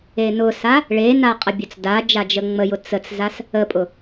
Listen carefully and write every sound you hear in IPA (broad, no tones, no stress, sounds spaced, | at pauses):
e n ʊ s a | ɭ e n a qʼ ə bʲ ʊ t͡s d a d͡ʒ a d͡ʒ ə ŋ͡m ə j ʊ t͡s ə t͡s z a s | ə pʼ ʊ